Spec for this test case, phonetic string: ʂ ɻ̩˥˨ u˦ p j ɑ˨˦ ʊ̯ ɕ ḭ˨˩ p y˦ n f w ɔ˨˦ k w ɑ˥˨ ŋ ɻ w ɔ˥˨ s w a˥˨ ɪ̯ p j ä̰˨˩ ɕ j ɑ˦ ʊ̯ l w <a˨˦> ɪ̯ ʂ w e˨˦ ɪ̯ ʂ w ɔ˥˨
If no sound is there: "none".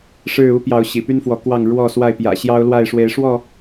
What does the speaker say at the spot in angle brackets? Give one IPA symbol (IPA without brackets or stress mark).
a˥˨